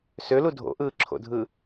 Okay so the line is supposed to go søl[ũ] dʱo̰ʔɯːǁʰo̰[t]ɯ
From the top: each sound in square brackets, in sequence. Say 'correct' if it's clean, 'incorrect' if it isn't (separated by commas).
incorrect, incorrect